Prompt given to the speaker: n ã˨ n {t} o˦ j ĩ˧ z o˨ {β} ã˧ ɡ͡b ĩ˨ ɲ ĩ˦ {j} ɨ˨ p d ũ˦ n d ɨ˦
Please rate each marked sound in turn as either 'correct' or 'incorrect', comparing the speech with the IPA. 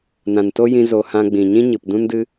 correct, incorrect, incorrect

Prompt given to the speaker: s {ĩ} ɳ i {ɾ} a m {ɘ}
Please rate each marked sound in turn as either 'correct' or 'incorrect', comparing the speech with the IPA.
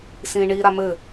correct, correct, correct

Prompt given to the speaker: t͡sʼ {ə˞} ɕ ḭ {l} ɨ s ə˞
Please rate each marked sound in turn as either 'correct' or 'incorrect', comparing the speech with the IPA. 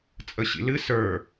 incorrect, correct

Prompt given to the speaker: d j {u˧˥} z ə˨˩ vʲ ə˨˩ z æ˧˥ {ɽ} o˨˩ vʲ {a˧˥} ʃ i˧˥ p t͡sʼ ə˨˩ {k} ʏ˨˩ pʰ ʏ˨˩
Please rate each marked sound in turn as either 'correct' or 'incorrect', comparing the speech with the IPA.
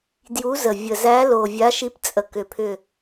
correct, incorrect, correct, correct

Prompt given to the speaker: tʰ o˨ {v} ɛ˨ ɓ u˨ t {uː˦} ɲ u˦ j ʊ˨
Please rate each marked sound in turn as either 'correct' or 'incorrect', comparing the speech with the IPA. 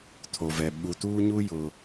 correct, correct

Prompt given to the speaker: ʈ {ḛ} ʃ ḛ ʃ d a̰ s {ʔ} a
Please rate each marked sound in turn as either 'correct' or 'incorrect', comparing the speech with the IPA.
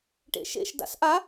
correct, correct

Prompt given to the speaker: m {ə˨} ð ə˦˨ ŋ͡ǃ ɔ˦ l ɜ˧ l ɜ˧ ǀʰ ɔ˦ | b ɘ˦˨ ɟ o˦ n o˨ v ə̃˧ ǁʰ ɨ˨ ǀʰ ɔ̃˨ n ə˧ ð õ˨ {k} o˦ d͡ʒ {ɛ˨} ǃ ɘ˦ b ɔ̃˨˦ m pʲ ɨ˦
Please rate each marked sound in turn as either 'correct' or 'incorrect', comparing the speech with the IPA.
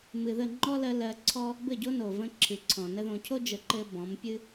incorrect, incorrect, incorrect

